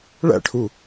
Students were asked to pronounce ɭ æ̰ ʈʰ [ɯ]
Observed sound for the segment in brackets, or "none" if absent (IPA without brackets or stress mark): u